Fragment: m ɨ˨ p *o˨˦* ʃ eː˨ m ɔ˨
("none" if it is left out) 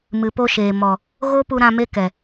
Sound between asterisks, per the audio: o˧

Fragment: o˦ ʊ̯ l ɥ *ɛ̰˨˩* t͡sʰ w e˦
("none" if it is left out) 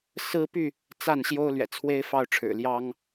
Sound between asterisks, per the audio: ɛ̰˨˩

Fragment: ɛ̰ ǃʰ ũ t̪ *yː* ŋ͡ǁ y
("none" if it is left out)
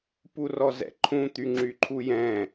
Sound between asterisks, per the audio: y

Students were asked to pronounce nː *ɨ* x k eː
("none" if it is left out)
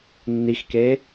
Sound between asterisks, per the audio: i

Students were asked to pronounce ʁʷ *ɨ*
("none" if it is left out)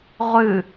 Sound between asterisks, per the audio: ɨ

